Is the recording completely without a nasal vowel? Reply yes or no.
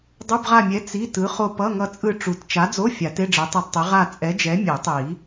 yes